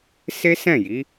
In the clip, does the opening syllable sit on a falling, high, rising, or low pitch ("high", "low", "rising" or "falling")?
high